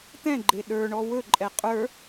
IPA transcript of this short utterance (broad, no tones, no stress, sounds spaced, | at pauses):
t̪ ɛ̃ ɡ͡ǃ e ɗ ə˞ ɳ ɔ w ɵ ǃʼ ɛ qʼ ə˞